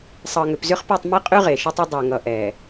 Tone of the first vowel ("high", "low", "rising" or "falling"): low